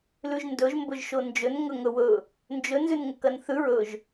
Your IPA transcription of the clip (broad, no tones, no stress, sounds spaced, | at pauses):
l ʉ ʒ n d ɵ ʒ m b ɵ ʒ ʃ o n d͡ʒ ɵ n ŋ ɵ ŋ ɵ w ɵ | n d͡ʒ ɵ n z ʉ n ŋ ɵ k ɐ n θ ʉ ɹ ɵ ʒ